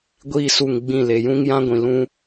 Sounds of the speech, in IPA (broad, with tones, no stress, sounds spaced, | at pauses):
ɡʷ iː˦˨ s u˦˨ ŋ ɡ͡b ĩ˦˨ l e˨ j ũ˦ ŋ j ã˦ ɡʷ ĩ˨ l ũ˦